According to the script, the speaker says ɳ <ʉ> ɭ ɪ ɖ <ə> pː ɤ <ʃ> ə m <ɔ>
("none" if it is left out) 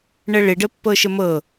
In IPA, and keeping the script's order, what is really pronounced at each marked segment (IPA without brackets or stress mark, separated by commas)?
ə, ə, ʃ, ɤ